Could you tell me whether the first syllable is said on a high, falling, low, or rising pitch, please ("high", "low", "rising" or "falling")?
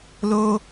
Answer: high